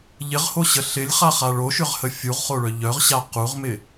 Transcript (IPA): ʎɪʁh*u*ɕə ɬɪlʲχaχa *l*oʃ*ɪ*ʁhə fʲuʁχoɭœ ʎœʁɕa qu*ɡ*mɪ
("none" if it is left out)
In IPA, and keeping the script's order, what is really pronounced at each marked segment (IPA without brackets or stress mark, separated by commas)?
o, ɭ, ʏ, ʁ